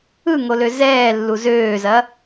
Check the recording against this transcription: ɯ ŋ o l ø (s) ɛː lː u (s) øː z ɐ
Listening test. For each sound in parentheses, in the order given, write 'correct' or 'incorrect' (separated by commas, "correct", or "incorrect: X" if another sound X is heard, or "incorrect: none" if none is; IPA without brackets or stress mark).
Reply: incorrect: z, incorrect: z